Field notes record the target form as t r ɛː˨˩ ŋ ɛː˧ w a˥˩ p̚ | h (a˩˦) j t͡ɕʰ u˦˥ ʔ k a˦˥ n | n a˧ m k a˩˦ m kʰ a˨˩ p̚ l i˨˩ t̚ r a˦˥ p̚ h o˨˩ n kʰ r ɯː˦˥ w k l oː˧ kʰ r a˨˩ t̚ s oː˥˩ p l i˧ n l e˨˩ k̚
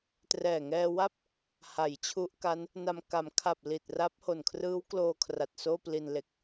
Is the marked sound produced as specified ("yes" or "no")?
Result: yes